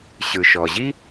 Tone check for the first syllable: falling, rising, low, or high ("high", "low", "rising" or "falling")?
low